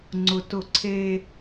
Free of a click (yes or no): no